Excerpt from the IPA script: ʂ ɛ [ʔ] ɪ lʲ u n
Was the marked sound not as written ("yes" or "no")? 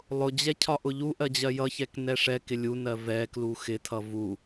yes